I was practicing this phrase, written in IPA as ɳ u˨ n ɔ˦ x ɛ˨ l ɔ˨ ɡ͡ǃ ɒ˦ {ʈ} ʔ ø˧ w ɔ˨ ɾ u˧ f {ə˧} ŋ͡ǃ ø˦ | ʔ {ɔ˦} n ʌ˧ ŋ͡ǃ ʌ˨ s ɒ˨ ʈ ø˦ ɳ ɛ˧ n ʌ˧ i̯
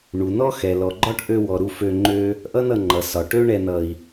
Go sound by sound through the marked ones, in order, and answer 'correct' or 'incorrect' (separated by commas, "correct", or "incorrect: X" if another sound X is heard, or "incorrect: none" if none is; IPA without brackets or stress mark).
correct, incorrect: ø˧, incorrect: ʌ˦